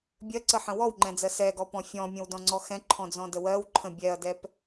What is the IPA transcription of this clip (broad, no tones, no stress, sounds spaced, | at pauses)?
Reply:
bʲ ɜ ǀ ə ħ ə̃ w ɔ w ŋ͡ǃ ɛ̃ d͡z ɜ s ɛ ɡ ɔ p ɔ̃ fʲ ɔ̃ mʲ ə̃ w d ɔ̃ ŋ͡ǀ ɔ x ɛ̃ ǃʰ ɔ̃ d͡z ɔ̃ d ə w ɜ w ǃʰ ə̃ bʲ ɛ ɐ̯ d ɛ p